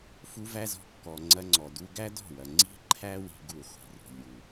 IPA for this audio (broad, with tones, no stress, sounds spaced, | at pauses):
f u˧ v æ˦ z ɔ̤˧ kː ɔ˨ ŋ͡ǀ ɐ˧ ŋ͡ǀ ɔ˨ d u˧ ɡ æ˦ d ɔ̤˦˨ w ɐ˨ ŋ͡ǀ i̤˦ ǃʰ æ˦ w i̤˦ ɡ u˦˨ χʷ i̤˨ r ṳ˨ lʲ u˨